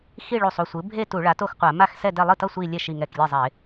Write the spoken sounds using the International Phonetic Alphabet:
xi˥˧ɭu˧˩sˤu˥˩sʷɯ˩˥ bʱe˥˧ tu˧˩˧ɭa˩˥to˥˩xqʷa˧˩˧ ma˥˧xsɛ˥˧ dɛ˥˧ lˠɯ˥˩tʌ˥˧ sʷi˥˧ lʲɛ˥˩ʃi˧˩ŋɛ˧˩klʲe˥˩ zˤɛ˧˩˧ɪ̯

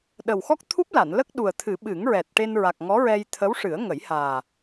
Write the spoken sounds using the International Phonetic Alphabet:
ɗə˨˩wxɔ˦˥k̚t̪ʰu˦˥p̚la˨˩˨n lə˦˥k̚ɗu˨˩ə̯t̪ʰɨ˨˩˦ ɓɨ˨˩˦ŋɹɛ˨˩t̚ʈe˧n ɹa˨˩k̚ ŋɔ˧˥ɹɛ˧j t̪ʰə˧˥wʂɨ˨˩˦ə̯ŋə˨˩˦j haː˨˩

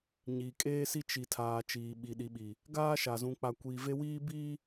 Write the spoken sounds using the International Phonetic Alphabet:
ɲiː˨kʼeː˦si˦ t͡ʃi˨ tʰaː˨t͡ʃiː˨ ɓi˨ɗi˨ɓi˨ | ɡaː˦ʃa˨ zũ˨k͡pa˨kʷiː˨ve˦ wiː˦biː˦

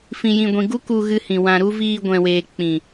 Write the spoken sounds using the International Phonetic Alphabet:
fĩ˨jĩ˨ɡʷĩ˨ ɡu˦ku˧ɣɨ˧hĩ˨ wã˨ɾu˧ viː˧ɡʷɛ̃˨weː˨ k͡pĩ˨

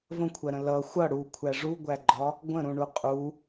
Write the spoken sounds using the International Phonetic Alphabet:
və̃kʷʰɜɾə̃ lʌ xʷʌ ɽukʷʰæ ʐuɡʷæɡ͡ǃɒ | ɡʷə̃ɾũɳu qʼu

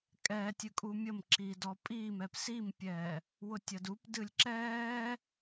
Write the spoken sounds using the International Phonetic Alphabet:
kʼɛːtʲɨ kʼumʲəmǁiː dɔpʼiːmɛp simpʲɛː | wʊtʲɐdup dɨlʲǁɛː

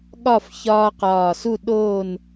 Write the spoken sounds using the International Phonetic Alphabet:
ɠɒ˥˨fçɒː˦qɒː˧˩su˥˨ ɗoː˧˩n

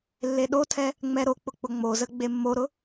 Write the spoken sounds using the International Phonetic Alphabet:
lːeɗotʰɛ | ŋ͡mɛɾok͡pʊ k͡pʊŋ͡mozə ɡ͡bemːoɾʊ

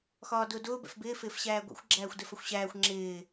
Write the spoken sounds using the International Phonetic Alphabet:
xɒːdʊːdʊː bɛ̰fbɪː fɪːfɕæːɡʷɛ̰xʷ ɡ͡ǁæːxʷdɛfəxʷɕæːxʷ ŋ͡ǁɪː

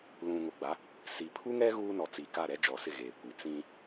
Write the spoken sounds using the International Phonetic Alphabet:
lũ˨ŋo˨ɡ͡ba˨˦ | si˨pʰu˦ŋɛ˦ ɣuː˦nɔ˨t͡si˨ka˦˨ ɾɛ˦d͡ʒɔ˨sɪ˦˨ ɣeː˨kʷi˨˦ t͡sĩ˦

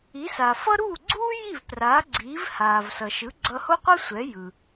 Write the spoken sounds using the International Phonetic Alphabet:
i˩˥sa˩fʌ˥ ɾuː˥˩ɡ͡ǀuː˥ji˥˩v praː˩˥ɡ͡ǀiː˩˥v haː˩vsʌ˩ʃɯ˩˥ ɡ͡ǀʌ˧ho˥qʷʌ˥sʷɛ˩˥ jɯ˩

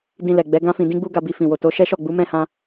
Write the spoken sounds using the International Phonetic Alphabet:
dĩ˧lɛ˨ɡ͡bɛ˨˦ ɡã˦fĩ˧dĩ˦ ɡ͡bu˦ɡa˧bi˧ fĩ˨wo˨to˨˦ ʃɛ˦ʃɔ˦˨ ɡ͡bu˨˦mɛ̃˦˨hã˧

